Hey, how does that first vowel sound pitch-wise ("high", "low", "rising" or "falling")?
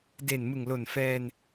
low